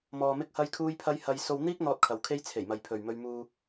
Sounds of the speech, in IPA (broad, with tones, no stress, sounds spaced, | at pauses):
m ɔː˧ m ɪ˥ k̚ h ɐ˥ j kʰ uː˥ j pʰ ɐ˥ j h ɐ˧ j s o˧ w n̪ iː˥ k̚ n̪ ɔː˥ t̚ kʰ ɐ˨ w kʰ e˥ j t͡sʰ e˨˩ j m ɐ˨ j pʰ ɵ˨ ɥ m ɵ˧ ɥ m uː˧